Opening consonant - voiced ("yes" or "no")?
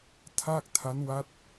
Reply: no